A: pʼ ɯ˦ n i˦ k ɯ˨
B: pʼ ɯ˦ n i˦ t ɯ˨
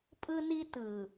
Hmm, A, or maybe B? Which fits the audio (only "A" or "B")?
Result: B